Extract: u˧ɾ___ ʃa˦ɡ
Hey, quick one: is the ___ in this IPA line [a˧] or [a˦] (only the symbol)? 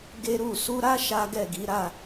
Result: a˦